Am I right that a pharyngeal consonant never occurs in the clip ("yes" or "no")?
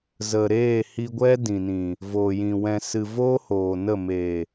yes